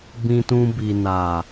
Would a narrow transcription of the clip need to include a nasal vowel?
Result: yes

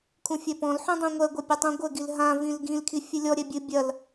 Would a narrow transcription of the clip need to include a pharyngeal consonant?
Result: yes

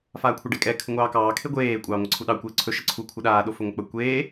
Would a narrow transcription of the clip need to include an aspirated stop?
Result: yes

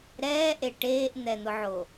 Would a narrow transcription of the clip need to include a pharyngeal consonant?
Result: yes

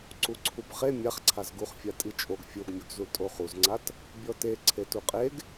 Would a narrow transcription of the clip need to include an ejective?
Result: yes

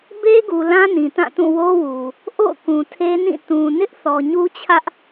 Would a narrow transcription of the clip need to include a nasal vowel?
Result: yes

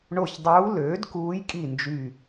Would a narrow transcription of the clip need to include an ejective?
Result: yes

